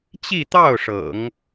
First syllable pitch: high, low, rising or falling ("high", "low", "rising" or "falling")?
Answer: falling